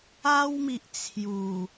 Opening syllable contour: high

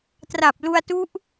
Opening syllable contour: low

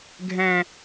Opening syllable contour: high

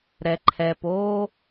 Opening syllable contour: low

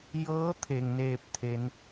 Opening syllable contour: rising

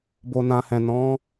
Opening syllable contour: low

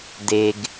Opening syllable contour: low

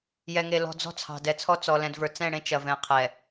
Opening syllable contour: low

